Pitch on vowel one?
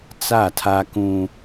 falling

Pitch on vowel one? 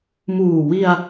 low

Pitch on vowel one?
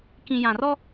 low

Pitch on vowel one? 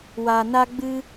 low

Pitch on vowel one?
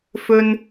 high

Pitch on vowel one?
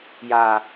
low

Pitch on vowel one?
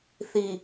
low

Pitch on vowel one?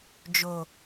low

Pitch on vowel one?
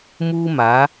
high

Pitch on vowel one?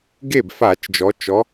falling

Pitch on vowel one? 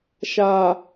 low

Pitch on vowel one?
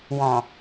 low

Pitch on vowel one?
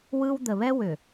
high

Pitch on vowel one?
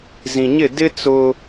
low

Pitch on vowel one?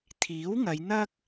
rising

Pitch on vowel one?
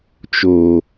low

